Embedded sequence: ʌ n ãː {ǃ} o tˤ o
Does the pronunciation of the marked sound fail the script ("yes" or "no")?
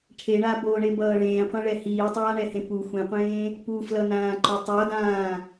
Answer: no